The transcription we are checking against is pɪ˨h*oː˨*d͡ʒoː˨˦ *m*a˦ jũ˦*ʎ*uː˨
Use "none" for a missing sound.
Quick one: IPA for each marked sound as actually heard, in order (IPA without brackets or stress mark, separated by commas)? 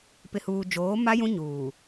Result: uː˨, m, ɲ